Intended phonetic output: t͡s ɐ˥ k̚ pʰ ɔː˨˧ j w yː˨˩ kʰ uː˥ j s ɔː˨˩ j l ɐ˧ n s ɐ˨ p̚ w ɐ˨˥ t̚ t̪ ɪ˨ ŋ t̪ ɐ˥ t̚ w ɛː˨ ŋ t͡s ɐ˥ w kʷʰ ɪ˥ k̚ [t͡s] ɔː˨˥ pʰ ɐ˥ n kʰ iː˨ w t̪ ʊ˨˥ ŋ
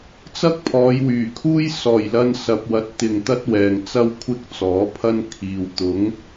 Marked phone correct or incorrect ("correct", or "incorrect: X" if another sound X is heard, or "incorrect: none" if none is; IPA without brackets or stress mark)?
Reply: correct